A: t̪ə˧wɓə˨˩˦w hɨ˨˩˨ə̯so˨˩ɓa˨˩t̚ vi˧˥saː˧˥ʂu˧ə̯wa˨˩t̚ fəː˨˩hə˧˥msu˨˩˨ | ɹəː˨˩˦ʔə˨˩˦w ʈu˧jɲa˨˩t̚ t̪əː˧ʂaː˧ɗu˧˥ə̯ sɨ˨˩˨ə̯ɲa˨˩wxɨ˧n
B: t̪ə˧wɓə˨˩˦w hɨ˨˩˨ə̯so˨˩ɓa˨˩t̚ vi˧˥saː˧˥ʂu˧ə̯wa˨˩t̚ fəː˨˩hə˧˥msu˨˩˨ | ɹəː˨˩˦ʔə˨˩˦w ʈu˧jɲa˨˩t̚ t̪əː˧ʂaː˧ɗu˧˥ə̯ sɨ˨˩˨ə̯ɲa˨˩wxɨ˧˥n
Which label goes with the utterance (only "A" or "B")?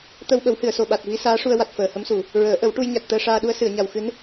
B